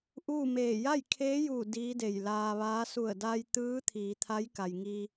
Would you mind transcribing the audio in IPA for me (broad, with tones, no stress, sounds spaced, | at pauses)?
ʔ uː˥˨ m eː˧˩ j a˥˨ j kʰ eː˧˥ j uː˧˩ d iː˧˥ d e˧˩ j l aː˧ ʋ aː˧˥ s u˧˩ ə̯ d a˧ j t̪ ɯː˧˥ t̪ʰ iː˩˧ t̪ʰ a˧˥ j k a˩ j ŋ i˧